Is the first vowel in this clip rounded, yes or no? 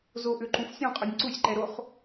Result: yes